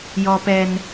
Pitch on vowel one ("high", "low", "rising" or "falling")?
low